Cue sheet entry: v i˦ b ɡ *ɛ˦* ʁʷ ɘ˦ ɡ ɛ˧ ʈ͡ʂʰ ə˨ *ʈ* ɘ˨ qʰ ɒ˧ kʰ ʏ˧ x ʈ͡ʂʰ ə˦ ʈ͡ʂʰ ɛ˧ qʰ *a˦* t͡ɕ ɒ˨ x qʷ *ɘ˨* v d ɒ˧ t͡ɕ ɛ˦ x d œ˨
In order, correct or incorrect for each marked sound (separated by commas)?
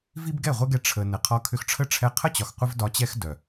incorrect, incorrect, incorrect, incorrect